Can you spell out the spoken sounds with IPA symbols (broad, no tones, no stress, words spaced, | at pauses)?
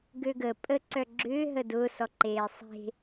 ɡøɡə pʼə ǀœɡ͡ǁʏː ɦədʊ sɔǃeːsˤe̤